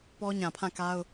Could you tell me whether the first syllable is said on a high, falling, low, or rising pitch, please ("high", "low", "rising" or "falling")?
high